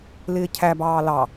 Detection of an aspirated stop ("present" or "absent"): present